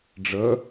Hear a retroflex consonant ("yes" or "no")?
yes